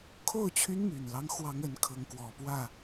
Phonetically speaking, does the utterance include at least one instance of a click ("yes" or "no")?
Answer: no